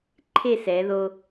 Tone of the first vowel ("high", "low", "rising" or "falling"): falling